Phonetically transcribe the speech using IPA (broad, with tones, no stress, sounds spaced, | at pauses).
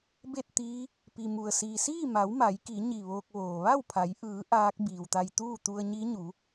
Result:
b e˥˨ t̚ t̪ iː˧˥ | p i˩ m u˩ ə̯ s iː˩ s iː˥˨ m a˩˧ w m a˩˧ j k i˩˧ ɲ i˧˩ ʋ oː˧ k̚ ʋ oː˩ ʋ a˥˨ w pʰ a˩˧ j ʔ ɯː˩˧ ʔ aː˧˥ k̚ b iː˩ w t̪ a˧ j t̪ uː˥˨ t̪ u˧ ə̯ ɲ i˧˥ ɲ u˩˧